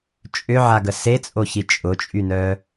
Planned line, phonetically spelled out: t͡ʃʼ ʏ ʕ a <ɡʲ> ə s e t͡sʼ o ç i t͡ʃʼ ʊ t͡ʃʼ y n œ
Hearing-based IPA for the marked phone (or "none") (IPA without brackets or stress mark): ɡ